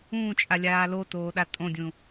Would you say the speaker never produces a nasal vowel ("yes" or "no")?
no